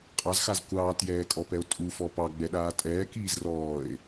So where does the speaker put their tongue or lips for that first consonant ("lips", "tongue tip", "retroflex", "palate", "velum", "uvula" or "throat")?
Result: uvula